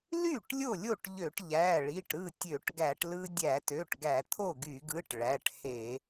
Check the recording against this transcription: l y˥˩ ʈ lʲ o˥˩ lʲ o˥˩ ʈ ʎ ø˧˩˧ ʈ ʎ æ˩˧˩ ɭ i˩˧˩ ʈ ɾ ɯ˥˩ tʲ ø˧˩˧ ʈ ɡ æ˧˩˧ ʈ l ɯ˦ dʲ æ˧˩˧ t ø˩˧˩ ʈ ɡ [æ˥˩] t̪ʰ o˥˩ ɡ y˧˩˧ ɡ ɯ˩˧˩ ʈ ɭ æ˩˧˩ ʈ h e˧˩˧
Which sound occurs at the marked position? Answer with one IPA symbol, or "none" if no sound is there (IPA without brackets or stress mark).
æ˧˩˧